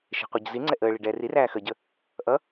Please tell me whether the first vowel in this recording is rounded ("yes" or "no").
no